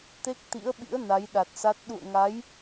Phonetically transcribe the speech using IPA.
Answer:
t̪ e˦˥ k̚ t̪ ḭ˧˥ ə̯ ɓ ḭ˧˥ ə̯ n a˨˦ j ɗ a˨˩ t̚ s a˦˥ t̚ ɗ ṵ˧˨ ə̯ ŋ a˨˦ j

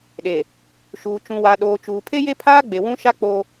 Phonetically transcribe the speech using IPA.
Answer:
ɗ e˨ | ʃ uː˨ t͡ʃ ũ˨ w a˨ ɗ oː˨ t͡ʃ uː˨ pʰ e˦ j e˦ pʰ aː˦ ɡ͡b e˨ w ũ˦ ʃ a˦ k͡p o˦

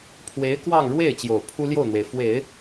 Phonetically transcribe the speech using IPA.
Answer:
pʰ w e˧˥ ɪ̯ k w ɑ˥˧ ŋ ɻ w e˥˩ ɪ̯ t͡ɕ j o˨˩ ʊ̯ pʰ u˥ l j o˥˩ ʊ̯ n̪ w e˩ ɪ̯ f w e˨˩˦ ɪ̯

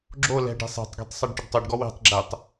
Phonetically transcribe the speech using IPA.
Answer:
ɡ͡ǁ o l ɛ̤ ɖ e̤ sˤ e̤ tˤ ɡ e̤ tˤ sˤ e ɖ ʈ ʏ ɖ tˤ o ɖ ɡ ɔ w e̤ tˤ ɡ͡ǁ ɛ tˤ

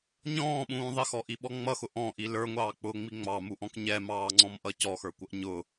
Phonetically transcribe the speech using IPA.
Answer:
ɲ ɔ̃ː ɓ ũː ðˤ ɪ x ɔ ʔ i ɓ ɔ ŋ͡m ʌ x ʊ ʔ ɔ̃ ʔ i l ə˞ ŋʷ ɑː k͡p ʊː ŋ͡m i ŋ͡m ɑ m u ʔ ɔ̃ k ɲ ɛ m ɑː ŋ͡ǀ ɔ̃ m ʔ ʌ c ɔ x ə˞ kʷ ʌ ʔ ɲ ʊ

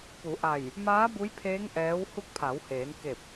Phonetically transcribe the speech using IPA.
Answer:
p u˩˧ ʔ a˧˩ j | m aː˧˥ b u˧˥ j pʰ eː˧˥ ŋ ʔ ɛː˧˥ w h u˧˥ k̚ pʰ a˩˧ w h eː˩˧ n k e˧˩ p̚

